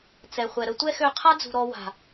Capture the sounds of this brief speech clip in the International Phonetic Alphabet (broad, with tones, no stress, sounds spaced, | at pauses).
t͡s ɛ˨ χʷ ɛ˨ ɾ ə˦ tʷ ɛ˦ x ø˧ qʰ a˦ d͡z ṳ˨ ɾ ɔ˧ w a̤˨